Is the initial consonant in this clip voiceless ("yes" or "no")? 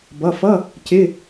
no